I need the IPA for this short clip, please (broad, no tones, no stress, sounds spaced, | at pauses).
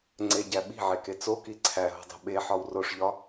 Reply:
ŋ͡ǀ e ɟ æ ɓ i̤ ʕ e k e t͡s o k i ǀʰ æ ɦ o̤ dˤ o̤ ɓ e ħ ɒ w r o ʂ ʎ ɒ